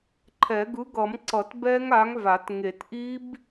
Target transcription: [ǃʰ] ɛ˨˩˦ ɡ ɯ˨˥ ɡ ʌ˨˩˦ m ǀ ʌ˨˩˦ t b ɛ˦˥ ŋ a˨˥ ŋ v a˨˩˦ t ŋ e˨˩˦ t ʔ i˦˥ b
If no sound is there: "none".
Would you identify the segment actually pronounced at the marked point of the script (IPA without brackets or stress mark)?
ǃʰ